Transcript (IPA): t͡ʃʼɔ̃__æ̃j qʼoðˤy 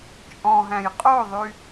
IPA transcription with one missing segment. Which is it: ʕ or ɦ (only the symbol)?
ɦ